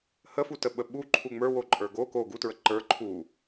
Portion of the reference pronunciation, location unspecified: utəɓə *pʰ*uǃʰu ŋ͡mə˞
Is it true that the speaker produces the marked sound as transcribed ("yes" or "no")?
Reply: no